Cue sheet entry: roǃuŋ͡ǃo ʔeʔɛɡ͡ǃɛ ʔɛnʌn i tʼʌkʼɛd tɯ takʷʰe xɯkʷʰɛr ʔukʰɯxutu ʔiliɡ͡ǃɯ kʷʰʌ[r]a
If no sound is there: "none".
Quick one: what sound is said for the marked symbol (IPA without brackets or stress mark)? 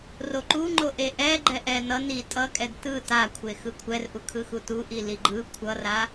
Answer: r